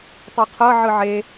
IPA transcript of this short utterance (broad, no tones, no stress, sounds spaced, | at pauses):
tˤ u qʰ ɤ ʕ ɯ ʕ e